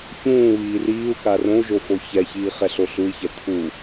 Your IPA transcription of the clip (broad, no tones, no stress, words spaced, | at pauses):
çũː βiːriːu̯ka rõu̯ʒo foçɛçiː χɛɬoɬui̯çɛ t̪ʰu